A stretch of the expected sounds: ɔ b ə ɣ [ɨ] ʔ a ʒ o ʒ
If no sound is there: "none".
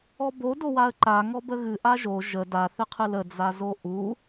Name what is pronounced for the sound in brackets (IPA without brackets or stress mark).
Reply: ɨ